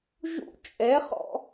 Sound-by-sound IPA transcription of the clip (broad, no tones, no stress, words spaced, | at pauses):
ʒṵ t͡ʃʼɛχɔ̰